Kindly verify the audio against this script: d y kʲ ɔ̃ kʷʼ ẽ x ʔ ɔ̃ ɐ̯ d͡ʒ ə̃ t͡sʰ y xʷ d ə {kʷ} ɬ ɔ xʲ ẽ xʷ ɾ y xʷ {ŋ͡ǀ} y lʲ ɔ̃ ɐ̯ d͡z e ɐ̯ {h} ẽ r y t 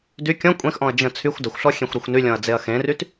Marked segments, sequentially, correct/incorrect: incorrect: xʷ, incorrect: n, incorrect: x

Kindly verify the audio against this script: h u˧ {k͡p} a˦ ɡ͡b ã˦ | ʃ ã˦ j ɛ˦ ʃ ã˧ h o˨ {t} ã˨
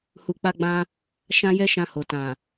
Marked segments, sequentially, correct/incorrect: correct, correct

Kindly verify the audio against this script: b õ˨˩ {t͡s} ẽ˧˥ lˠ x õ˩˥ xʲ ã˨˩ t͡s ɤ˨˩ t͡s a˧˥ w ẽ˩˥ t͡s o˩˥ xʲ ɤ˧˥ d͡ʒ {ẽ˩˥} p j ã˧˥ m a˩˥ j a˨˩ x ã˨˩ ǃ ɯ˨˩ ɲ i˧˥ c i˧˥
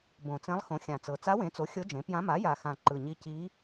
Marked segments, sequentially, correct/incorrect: correct, correct

